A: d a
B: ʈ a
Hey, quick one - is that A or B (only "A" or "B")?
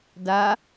A